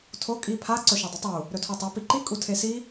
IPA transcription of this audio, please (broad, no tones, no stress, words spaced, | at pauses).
tʰo kʼi pʰa ǀɵʃɐdˤɵtˤu | ɾɵtʰotˤo piǃi kʼutʰesi